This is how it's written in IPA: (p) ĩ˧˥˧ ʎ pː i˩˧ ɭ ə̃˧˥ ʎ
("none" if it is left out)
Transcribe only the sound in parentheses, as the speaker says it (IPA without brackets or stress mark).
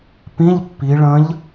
p